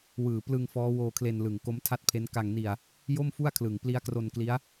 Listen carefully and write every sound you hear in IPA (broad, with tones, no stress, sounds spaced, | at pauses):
w ɯː˨˩ p l ɯ˧ ŋ f ɔː˦˥ w oː˧ kʰ l e˧ n l ɯ˨˩ ŋ k o˦˥ m tʰ a˥˩ t̚ pʰ e˦˥ n k a˧ ŋ n i˧ a̯ | j o˥˩ m f u˥˩ a̯ kʰ l ɯ˨˩ ŋ p l i˦˥ a̯ k r o˧ n k l i˦˥ a̯